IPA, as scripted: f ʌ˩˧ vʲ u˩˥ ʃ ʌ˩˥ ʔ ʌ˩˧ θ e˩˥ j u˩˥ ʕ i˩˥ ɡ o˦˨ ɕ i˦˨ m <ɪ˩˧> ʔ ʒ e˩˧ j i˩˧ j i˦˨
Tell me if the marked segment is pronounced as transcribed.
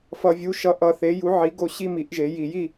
no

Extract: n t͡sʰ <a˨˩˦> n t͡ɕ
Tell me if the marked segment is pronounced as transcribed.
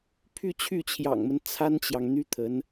no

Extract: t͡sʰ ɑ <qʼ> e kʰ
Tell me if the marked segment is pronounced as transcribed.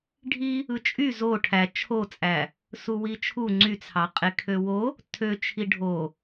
yes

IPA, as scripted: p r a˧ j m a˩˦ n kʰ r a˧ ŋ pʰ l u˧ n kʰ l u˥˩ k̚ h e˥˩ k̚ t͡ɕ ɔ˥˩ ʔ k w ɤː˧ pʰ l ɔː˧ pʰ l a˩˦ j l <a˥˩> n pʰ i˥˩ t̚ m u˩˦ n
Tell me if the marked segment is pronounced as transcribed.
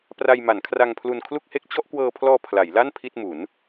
yes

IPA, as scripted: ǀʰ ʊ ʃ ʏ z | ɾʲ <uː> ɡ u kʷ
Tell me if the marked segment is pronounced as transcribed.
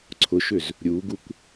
yes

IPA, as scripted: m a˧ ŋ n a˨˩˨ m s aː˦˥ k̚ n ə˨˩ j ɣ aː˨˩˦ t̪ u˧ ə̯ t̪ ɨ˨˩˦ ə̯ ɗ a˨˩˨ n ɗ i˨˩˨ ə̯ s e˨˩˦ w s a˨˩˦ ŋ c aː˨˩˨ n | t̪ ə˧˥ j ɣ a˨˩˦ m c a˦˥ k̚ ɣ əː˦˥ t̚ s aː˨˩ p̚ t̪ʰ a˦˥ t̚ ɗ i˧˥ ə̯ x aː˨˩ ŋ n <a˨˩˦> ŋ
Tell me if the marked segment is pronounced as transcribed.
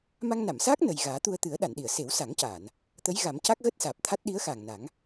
yes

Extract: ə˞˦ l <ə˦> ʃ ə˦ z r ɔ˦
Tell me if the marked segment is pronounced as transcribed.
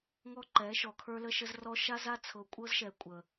yes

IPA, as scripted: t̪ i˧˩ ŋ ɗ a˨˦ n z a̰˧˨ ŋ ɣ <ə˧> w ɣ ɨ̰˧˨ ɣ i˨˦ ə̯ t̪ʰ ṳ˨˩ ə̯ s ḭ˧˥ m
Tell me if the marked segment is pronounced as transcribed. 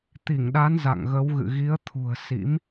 no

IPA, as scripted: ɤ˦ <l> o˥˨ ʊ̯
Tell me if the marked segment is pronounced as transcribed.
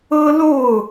yes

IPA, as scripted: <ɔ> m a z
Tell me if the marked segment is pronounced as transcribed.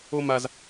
no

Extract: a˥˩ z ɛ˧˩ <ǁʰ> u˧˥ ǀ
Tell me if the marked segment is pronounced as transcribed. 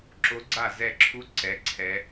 yes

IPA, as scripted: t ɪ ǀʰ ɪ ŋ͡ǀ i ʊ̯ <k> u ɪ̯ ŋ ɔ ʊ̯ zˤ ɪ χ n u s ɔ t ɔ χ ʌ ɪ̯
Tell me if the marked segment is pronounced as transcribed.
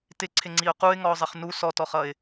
no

